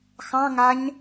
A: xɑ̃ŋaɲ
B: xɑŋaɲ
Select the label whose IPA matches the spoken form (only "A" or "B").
A